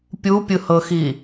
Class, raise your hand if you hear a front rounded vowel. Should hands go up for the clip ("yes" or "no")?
no